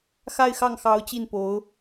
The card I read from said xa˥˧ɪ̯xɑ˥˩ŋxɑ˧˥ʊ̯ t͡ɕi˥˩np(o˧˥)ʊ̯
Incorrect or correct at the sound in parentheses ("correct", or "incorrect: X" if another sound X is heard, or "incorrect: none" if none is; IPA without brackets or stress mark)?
correct